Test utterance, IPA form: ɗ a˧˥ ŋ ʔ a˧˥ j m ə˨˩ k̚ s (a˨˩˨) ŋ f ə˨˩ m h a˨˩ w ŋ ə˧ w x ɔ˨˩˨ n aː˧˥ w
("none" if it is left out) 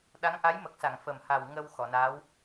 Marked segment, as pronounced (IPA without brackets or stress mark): a˨˩˨